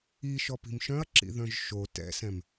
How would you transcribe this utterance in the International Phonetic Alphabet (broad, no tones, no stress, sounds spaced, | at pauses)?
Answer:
i ʃ ɔ p i̤ m ʃ œ̃ ɐ̯ ǁ ḭ ð œ̃ ʒ ʃ o t ɛ̰ s ɛ̃ m